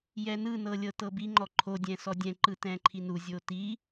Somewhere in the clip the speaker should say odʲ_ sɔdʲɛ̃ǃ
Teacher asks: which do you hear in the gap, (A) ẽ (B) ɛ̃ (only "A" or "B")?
B